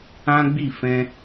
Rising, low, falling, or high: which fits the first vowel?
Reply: high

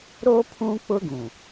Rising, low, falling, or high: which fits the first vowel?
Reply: high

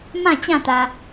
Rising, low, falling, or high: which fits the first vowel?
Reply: falling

